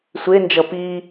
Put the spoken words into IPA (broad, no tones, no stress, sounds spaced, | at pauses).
sʷ e n d͡ʒ ʌ p i